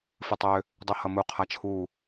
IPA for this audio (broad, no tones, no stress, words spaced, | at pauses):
fɨtˤø | dˤuhʌmu qʰat͡ʃʰu